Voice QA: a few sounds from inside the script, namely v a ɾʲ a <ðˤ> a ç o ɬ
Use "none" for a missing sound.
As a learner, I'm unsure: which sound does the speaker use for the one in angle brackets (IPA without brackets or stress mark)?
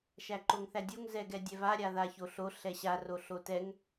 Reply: ð